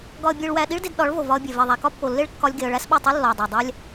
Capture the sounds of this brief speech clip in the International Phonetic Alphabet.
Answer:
ɡɒ˧ə̯bʲe˧ɭwæ˧ ɗi˦ɭde˧d ɗɒ˨˦ɭvo˨ vɒ˧ə̯bʲe˨vi˨ðˤæ˨ kɒ˦pːo˨lːe˦ɭ kːɒ˦lʲɡe˧ə̯ ɭæ˦sɓo˦˨tˤe˦ lːɒ˨ə̯dˤæ˨dˤæ˦lʲ

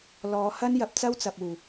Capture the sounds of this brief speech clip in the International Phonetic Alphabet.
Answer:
lɔː˨˧hɐ˥njɐ˨˥p̚ t͡sɐ˥wt͡sɐ˨p̚ uː˨˩

